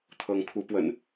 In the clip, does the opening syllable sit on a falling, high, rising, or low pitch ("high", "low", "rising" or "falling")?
rising